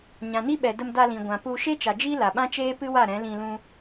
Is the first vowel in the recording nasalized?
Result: yes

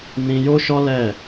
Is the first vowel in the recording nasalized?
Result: yes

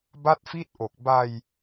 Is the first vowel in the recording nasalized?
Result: no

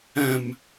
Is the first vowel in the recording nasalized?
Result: yes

